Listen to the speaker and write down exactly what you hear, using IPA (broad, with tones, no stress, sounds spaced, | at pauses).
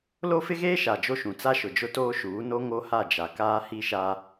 l o˦ f ɪ˦ ɣ eː˦ ʃ a˨ d͡ʒ o˦ ʃ ũ˨ t͡s a˦ ʃ ʊ˨ d͡ʒ ʊ˦ t oː˦ ʃ uː˨˦ n o˦ ŋ o˦ h a˦˨ d͡ʒ a˨ k aː˦ h i˦ ʃ a˦